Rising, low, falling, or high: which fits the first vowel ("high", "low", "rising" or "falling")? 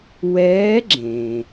rising